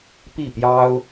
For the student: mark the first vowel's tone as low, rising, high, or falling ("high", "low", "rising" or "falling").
falling